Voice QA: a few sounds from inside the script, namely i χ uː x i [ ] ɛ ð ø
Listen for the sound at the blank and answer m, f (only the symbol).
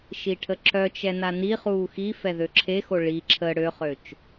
f